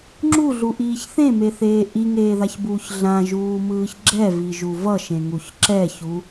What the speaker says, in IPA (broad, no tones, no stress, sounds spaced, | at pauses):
ŋ͡ǁ u ɮ u ʔ iː ç θ ẽ m e θ eː ʔ i ŋ eː ð a ç b uː ç ɮ ã ʒ uː m ɯː ç ɡ͡ǁ ɛ v i ʒ u v ʌ ʃ ẽ ŋ u ç ǁ ɛ ç u